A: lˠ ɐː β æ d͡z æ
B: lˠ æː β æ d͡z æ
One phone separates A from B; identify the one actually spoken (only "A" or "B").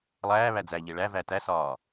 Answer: B